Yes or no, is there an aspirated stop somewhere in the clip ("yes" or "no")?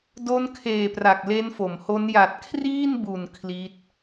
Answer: yes